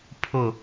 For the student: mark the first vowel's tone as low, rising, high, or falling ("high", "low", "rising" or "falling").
low